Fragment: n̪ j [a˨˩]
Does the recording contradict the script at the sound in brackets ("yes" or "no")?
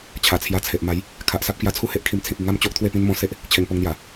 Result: no